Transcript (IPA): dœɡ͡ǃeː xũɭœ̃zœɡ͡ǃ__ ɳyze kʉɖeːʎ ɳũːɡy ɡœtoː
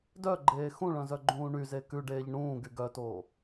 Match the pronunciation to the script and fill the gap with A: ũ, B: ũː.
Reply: B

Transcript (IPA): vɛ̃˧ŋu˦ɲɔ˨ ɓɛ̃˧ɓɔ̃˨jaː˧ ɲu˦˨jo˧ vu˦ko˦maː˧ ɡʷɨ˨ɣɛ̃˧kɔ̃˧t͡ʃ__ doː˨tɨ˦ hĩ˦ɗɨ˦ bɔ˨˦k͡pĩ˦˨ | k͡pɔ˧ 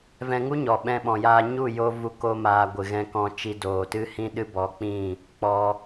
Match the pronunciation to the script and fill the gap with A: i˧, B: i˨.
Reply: A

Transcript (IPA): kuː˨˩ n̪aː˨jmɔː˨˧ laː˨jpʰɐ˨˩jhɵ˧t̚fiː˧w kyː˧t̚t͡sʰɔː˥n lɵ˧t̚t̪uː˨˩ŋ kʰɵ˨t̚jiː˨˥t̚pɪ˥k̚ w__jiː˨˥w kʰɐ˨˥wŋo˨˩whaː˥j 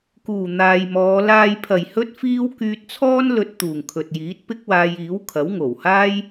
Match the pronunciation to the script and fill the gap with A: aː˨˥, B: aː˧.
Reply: B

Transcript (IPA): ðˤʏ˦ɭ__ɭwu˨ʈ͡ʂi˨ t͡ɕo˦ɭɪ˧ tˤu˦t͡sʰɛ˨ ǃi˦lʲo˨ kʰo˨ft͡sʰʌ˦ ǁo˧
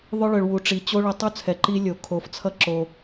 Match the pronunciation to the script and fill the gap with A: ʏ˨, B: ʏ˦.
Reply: A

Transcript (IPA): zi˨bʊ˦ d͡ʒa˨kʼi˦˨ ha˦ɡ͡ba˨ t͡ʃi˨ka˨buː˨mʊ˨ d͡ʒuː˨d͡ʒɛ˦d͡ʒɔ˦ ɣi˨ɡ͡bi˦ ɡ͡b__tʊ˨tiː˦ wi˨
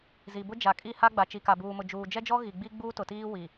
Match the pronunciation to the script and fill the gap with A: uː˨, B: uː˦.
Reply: B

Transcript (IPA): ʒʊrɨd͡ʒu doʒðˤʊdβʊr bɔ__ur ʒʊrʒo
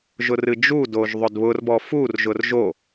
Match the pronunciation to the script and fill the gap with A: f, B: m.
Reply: A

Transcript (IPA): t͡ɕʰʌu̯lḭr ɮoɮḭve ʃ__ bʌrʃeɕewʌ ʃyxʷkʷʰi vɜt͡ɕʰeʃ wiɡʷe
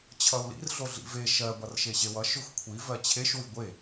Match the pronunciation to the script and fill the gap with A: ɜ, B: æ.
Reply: A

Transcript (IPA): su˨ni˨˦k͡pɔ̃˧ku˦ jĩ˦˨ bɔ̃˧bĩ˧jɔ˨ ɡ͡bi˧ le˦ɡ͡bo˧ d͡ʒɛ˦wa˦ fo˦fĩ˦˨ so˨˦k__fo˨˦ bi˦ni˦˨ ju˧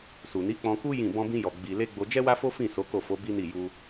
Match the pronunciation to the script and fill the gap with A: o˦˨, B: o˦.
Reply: A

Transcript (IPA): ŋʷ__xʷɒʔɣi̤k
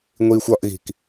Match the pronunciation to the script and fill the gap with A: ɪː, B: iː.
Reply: B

